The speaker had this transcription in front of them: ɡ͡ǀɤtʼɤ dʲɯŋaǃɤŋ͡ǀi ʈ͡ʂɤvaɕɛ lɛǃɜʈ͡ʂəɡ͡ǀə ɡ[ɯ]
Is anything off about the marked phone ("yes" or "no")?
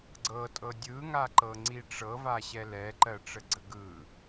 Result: no